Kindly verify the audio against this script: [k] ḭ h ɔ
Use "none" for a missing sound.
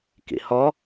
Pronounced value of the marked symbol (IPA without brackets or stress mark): k